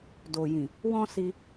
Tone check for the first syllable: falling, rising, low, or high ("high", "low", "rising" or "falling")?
low